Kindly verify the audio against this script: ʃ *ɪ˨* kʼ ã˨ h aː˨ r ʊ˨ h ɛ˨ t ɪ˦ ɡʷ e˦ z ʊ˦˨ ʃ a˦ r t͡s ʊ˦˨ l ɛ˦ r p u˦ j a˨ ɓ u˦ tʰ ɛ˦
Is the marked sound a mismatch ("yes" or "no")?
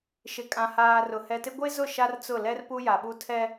no